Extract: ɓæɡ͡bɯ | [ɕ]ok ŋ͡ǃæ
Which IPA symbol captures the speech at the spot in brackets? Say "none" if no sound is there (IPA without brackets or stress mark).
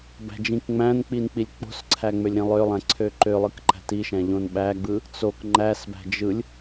t͡s